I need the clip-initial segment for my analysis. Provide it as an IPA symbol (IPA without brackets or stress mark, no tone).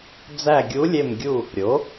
d͡z